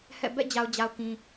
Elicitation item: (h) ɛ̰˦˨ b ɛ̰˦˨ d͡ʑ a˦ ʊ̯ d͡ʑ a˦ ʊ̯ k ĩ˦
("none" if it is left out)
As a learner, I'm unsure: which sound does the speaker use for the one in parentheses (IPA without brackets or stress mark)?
h